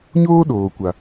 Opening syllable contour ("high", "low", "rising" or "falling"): high